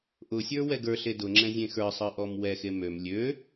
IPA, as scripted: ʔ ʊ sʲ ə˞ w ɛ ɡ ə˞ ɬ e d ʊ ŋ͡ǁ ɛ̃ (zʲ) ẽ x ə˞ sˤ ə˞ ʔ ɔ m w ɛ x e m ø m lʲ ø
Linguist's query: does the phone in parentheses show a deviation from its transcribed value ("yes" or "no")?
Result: no